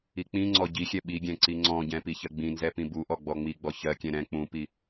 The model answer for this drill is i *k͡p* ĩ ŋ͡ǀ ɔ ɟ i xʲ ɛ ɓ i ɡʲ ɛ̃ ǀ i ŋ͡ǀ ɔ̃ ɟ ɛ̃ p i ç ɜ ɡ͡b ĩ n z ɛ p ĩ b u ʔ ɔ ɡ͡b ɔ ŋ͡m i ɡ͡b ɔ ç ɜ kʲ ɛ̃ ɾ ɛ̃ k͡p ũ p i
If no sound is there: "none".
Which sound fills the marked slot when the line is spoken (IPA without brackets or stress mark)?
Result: k͡p